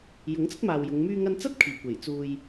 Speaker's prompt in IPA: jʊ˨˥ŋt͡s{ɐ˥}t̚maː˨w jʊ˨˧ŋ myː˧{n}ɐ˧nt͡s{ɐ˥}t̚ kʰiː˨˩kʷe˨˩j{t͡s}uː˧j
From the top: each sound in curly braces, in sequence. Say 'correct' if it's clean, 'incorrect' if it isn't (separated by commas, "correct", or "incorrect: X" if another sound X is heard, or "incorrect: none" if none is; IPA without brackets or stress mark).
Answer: correct, incorrect: ŋ, correct, correct